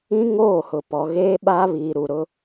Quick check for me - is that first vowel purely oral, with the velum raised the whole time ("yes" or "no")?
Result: no